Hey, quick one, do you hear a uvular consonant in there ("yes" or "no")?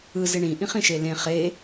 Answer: yes